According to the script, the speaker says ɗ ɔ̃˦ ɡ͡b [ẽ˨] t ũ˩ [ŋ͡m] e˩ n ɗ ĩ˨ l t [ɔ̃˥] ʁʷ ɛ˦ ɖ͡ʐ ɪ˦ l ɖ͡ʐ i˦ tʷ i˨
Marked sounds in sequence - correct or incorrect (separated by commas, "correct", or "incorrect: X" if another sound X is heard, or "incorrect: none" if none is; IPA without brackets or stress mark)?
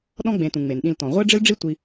correct, correct, incorrect: ɔ̃˩